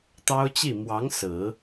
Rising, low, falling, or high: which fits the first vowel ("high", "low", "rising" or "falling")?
high